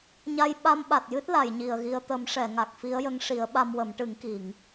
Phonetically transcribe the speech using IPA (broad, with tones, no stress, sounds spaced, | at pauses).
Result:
ɲ a˧ j ɓ a˧ m ɓ a˨˩ t̚ j ɨ˦˥ t̚ l a˨˩˨ j ɲ i˨˩ ə̯ ɣ i˧ ə̯ t̪ ə˨˩˦ m ʂ ɛ˨˩˨ ŋ a˨˩ k̚ f i˧˥ ə̯ j ə˧˥ ŋ ʂ i˨˩˦ ə̯ ɓ a˧ m w ə˨˩˦ m ʈ ɨ˨˩˦ ŋ k i˨˩˨ ŋ